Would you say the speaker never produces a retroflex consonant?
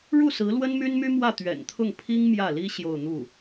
no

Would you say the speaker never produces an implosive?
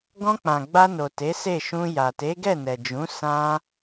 yes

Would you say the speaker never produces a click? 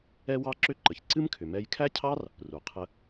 no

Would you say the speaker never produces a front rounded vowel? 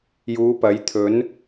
yes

